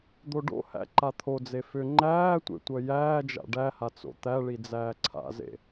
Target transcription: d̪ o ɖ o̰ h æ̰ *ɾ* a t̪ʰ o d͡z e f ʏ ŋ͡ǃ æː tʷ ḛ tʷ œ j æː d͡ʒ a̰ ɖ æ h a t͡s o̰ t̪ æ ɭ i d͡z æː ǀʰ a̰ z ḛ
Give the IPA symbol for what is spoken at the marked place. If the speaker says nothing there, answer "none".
ǃ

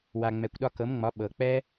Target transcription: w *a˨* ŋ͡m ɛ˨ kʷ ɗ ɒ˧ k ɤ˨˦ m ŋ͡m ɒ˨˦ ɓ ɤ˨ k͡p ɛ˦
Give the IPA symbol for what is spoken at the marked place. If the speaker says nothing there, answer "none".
a˨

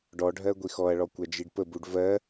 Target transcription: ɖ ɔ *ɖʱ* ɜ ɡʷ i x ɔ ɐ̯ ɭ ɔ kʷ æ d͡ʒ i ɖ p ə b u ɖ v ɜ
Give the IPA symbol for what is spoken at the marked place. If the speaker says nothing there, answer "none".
ɖʱ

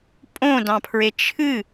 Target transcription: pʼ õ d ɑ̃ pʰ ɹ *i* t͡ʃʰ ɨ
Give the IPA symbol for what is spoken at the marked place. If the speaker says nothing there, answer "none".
e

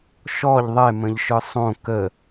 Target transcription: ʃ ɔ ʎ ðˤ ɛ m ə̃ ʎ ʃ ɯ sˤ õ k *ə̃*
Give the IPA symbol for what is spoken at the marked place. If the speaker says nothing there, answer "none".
ə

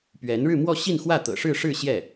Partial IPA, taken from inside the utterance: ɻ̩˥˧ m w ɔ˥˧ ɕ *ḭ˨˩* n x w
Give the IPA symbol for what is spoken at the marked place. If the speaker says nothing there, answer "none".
i˥˧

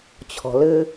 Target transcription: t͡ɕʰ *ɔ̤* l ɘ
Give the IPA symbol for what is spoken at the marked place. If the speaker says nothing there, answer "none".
ɔ̤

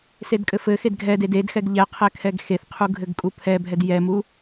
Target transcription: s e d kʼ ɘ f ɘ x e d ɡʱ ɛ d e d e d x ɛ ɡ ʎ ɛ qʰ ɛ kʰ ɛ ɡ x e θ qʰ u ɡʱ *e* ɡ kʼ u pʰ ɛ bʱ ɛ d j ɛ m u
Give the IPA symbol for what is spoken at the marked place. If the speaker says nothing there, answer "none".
ɘ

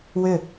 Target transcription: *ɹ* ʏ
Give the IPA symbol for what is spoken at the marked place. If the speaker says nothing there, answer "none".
w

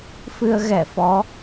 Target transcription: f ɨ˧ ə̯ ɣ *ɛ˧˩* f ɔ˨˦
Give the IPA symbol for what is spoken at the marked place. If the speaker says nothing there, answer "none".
ɛ˧˩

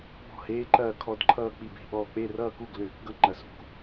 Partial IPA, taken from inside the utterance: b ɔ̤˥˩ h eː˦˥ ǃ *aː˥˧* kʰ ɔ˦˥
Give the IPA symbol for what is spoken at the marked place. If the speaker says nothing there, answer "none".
ɐː˥˧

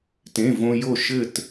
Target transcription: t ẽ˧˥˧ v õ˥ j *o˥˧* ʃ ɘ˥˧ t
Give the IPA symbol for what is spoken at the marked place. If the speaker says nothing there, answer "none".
o˥˧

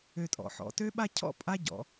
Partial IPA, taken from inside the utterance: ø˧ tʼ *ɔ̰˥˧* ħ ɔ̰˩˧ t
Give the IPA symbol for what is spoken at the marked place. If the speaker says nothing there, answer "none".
ɔ̰˩˧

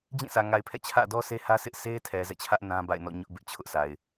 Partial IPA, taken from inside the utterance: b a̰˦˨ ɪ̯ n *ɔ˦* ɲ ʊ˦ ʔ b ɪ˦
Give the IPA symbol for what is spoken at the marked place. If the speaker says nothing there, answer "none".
ɔ̰˦˨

